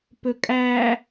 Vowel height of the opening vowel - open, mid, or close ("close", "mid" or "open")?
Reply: mid